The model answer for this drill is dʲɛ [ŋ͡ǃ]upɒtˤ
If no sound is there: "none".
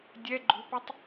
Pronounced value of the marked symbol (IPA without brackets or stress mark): ɡ͡ǃ